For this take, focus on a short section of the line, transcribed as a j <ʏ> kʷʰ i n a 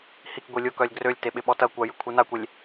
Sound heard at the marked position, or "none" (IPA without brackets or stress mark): ʏ